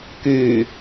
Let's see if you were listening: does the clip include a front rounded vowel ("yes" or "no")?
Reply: yes